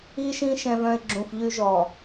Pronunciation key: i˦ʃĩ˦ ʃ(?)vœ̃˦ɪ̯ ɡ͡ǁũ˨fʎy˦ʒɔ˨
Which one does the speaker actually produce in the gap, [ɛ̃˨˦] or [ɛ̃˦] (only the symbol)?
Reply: ɛ̃˦